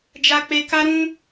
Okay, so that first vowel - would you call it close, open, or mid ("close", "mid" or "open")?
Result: open